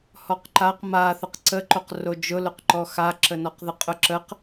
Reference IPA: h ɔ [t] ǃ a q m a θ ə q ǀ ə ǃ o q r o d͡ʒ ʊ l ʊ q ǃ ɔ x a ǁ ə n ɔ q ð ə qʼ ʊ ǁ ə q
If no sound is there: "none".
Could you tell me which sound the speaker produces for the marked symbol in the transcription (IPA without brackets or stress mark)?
q